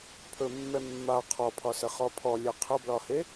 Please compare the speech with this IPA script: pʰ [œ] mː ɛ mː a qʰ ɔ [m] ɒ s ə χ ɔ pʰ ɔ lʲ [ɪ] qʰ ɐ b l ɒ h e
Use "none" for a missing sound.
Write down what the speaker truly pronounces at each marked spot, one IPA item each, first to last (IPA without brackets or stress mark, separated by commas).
ɵ, pʰ, ɛ